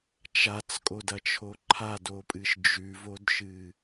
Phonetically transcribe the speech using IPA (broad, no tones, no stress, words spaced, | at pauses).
t͡ʃat͡skʼodɐt͡ʃʰo ǃʰadopʼɨʃ d͡ʒʉvodʃɨ